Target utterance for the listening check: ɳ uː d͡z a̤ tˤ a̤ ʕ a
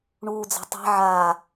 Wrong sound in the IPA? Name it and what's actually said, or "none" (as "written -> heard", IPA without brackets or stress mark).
none